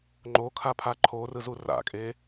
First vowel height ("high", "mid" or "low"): mid